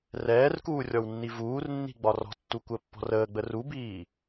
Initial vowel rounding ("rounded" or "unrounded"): unrounded